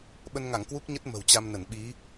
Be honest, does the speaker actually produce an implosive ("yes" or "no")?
yes